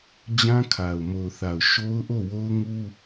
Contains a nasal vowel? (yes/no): yes